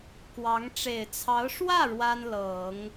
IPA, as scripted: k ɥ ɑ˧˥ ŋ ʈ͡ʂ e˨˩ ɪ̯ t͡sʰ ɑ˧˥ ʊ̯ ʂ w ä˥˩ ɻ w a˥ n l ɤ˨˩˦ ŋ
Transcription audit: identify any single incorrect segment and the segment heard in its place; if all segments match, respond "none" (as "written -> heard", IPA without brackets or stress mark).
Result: ɥ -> w